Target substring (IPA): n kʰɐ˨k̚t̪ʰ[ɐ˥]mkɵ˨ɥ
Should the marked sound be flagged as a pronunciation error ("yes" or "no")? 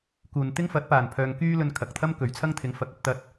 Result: no